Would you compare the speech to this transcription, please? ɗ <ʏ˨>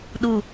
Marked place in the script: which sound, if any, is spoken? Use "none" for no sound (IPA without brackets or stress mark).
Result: u˨